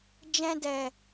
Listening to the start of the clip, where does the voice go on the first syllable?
high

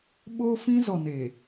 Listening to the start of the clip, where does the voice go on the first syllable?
high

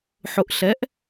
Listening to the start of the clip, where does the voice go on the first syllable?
rising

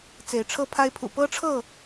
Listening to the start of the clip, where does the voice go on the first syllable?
rising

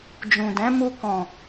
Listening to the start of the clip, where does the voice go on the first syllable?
low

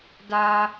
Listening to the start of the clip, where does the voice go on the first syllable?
high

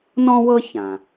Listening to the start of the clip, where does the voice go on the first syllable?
high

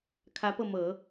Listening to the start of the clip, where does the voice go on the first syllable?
rising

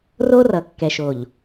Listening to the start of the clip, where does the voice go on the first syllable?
high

